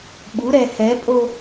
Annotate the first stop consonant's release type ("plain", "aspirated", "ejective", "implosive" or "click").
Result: implosive